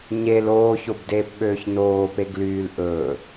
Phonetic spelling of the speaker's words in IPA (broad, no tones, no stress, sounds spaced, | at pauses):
ɲ e l oː ç o b d eː p ɓ øː ç n oː p e ɡ l yː l ʔ ɵ